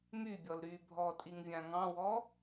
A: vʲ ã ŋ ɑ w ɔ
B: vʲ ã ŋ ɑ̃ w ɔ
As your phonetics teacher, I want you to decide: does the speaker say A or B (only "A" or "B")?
B